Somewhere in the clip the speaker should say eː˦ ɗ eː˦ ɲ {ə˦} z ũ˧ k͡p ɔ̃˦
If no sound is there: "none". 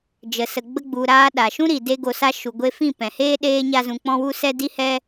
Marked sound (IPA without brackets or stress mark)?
a˦